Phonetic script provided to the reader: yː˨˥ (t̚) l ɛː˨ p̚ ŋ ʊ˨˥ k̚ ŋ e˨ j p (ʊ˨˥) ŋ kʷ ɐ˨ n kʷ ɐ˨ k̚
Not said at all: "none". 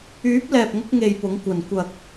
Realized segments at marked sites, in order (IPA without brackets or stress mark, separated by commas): p̚, ʊ˨˥